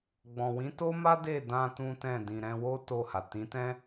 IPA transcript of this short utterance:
ɡ͡b ɔ̃˨ w ĩ˨˦ t o˦ m a˦ d e˦˨ d ã˧ t ũ˦ t ɛ̃˦˨ d ĩ˨ ɾ ɛ̃˧ w o˦ t o˦˨ h a˨ t ĩ˨˦ t ɛ̃˦

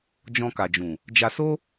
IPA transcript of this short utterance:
d͡ʒ ɔ̃˧ k a˨ d͡ʒ ũ˨ | d͡ʒ a˧ s o˦

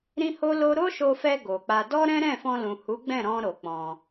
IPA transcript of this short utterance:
ɾ ĩ˦ h o˦ l o˦ ɾ o˦ ʃ o˧ f ɛ˧ ɡ o˨ k͡p a˧ d ɔ˦ ɾ ɛ̃˦ ɾ ɛ̃˦˨ f ɔ̃˧ l ũ˨ h u˨˦ ɡ͡b ɛ̃˦˨ ɾ ɔ̃˧ ɾ o˨ k͡p ɔ̃˧

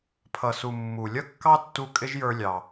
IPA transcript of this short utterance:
pʰ ʌ˩ s u˩ mː u˩ lʲ ʌ˥ kː ɑ˥ tː u˧ kʼ ɪ˥ ʒ j ə˞˧ lʲ ɑ˩

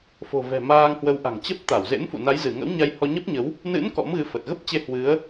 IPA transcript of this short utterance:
f o̤˨˩ v ɛ̤˨˩ m aː˧ ŋ h w ə˨˦ w ʔ a̤˨˩ ŋ t͡ɕ ə˦˥ p̚ t̪ a˧˩ w z ḛ˧˥ n f ṵ˧˨ n a˨˦ j z ɨ˧˩ ŋ ə̰˧˥ w ɲ a˧ j h ɔ˧ ɲ ə˦˥ p̚ ɲ ə˨˦ w | n ɨ̰˧˥ n k ɔ̰˧˥ m ɣ ɨ˧ f ə˨˩ t̚ ɣ ə˦˥ p̚ t͡ɕ e˧ h w ɨ˨˦ ə̯

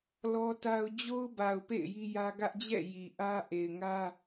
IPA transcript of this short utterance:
l ɔ˦ t a˦ ʊ̯ d͡ʑ o˦ ʊ̯ b a˨ ʊ̯ p ḛ˦˨ ɪ̯ j i˦ j ä˦ ɡ ä˦ ʔ d͡ʑ ɛ̰˦˨ j i˨ ʔ ä˦ ʔ e˨ ɪ̯ ŋ ä˦

